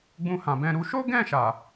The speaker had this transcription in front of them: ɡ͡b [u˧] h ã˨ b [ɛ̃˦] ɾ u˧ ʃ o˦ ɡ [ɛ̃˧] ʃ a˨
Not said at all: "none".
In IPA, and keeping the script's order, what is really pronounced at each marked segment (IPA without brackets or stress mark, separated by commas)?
ũ˧, ɛ̃˧, ɛ̃˦˨